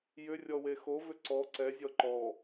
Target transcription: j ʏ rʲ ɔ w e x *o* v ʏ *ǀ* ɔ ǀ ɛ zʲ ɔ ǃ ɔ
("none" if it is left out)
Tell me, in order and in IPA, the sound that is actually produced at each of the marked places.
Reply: o, ǀ

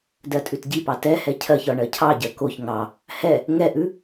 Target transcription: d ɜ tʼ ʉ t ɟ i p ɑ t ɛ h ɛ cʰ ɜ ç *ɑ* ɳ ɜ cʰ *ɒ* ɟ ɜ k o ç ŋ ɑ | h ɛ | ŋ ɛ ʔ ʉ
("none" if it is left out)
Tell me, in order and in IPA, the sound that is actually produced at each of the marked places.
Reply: ɒ, ɑ

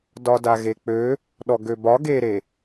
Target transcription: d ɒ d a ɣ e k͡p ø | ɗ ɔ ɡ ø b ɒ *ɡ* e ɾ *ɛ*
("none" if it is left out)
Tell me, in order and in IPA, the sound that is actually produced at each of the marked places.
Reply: ɡ, e

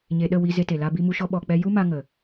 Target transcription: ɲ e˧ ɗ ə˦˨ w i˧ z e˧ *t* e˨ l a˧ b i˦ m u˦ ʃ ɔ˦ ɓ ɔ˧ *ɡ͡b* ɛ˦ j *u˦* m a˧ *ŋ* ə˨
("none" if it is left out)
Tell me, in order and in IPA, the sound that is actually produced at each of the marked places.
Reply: t, k͡p, u˦, ŋ

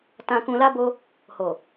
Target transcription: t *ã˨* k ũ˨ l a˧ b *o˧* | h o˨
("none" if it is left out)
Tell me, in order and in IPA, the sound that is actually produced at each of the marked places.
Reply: ã˨, o˧

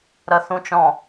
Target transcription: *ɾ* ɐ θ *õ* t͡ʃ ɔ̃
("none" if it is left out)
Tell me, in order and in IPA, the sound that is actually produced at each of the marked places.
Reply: ɾ, ũ

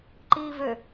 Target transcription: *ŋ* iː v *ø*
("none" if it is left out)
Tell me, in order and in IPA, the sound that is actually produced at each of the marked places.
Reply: ǃ, ø

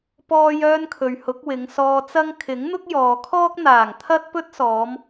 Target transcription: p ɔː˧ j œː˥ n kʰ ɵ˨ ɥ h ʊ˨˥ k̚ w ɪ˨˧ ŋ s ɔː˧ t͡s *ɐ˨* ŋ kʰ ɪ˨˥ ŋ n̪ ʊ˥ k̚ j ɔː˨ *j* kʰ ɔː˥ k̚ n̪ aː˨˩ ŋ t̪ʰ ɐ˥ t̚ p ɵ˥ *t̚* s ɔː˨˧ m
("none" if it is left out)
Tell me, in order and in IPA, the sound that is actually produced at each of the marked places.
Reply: ɐ˥, none, t̚

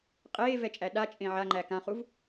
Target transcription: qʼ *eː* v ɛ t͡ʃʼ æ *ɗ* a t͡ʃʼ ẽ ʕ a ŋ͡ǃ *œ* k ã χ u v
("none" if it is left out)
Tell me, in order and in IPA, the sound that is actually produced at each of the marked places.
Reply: eː, ɗ, æ

